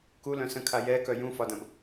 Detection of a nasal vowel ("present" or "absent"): present